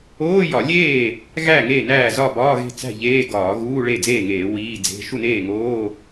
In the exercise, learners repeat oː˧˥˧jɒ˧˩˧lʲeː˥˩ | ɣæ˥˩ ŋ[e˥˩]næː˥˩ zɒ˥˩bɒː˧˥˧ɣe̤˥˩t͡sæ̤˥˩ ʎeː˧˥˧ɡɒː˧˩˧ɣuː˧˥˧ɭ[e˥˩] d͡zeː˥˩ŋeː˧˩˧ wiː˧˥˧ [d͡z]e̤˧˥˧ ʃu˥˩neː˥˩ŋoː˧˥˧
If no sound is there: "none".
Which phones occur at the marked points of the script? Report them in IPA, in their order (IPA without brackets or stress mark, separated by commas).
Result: e˥˩, e˥˩, d͡z